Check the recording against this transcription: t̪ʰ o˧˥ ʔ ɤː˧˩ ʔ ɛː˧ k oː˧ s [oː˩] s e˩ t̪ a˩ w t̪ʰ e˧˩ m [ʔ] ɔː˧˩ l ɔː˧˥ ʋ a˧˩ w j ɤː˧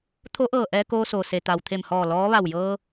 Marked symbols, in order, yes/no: yes, no

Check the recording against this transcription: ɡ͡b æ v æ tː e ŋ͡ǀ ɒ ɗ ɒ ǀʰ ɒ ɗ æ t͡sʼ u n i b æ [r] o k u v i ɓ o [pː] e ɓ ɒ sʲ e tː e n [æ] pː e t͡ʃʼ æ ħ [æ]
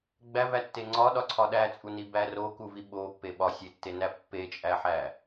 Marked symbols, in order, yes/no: yes, yes, yes, yes

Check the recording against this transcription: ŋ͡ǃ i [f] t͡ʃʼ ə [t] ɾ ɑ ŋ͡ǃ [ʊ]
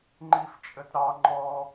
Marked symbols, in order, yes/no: yes, yes, no

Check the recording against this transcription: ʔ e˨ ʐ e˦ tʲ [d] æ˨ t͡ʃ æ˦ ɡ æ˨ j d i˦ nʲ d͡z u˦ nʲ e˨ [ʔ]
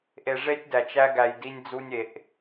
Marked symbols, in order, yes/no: yes, yes

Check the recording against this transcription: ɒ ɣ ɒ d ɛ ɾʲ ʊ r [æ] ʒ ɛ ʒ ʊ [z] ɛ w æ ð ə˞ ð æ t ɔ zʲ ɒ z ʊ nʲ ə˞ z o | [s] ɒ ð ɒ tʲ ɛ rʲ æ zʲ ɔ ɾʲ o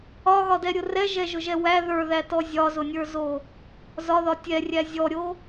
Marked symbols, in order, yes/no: no, no, no

